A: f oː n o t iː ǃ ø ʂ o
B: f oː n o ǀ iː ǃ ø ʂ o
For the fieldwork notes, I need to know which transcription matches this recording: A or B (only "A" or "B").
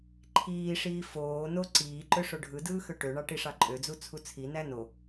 B